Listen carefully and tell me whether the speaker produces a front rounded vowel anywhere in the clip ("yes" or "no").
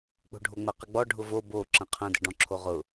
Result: no